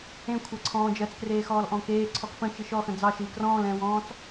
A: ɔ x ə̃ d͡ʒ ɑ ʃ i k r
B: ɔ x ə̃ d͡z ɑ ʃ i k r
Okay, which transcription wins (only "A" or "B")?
B